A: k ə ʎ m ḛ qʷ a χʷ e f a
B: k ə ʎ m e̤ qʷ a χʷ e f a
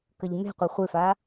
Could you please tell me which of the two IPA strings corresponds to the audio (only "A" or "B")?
B